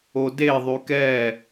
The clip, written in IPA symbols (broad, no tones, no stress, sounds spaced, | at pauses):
o d e ðˤ y k ɛ